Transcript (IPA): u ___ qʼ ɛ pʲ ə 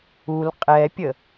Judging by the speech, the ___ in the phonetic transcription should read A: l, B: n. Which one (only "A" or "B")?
A